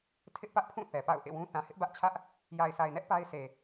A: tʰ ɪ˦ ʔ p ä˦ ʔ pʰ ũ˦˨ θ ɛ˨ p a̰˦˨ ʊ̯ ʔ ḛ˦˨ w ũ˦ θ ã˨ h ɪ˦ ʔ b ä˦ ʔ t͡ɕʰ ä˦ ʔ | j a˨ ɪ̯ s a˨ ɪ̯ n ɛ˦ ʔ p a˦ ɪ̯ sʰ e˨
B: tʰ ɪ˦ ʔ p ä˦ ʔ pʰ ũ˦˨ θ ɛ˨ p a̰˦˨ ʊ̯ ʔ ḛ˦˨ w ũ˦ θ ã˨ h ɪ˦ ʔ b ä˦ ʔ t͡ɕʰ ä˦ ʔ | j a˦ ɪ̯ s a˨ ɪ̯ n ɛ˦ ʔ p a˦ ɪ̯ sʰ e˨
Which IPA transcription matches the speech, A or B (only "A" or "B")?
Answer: A